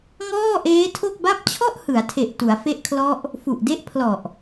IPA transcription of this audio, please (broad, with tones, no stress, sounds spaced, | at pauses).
ŋ ɔː˥˩ ʔ eː˦˥ tʰ o˥˩ k̚ b a˦˥ p̚ t͡ɕʰ ɔ˥˩ ʔ h ɯ˩˦ a̯ tʰ e˨˩ ʔ t u˩˦ a̯ f e˦˥ ʔ kʰ l ɔ˦˥ ʔ | f u˨˩ ʔ d e˥˩ ʔ pʰ l ɔ˨˩ ʔ